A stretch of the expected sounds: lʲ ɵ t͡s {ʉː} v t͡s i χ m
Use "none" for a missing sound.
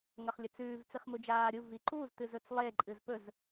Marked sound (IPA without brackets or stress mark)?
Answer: ʉː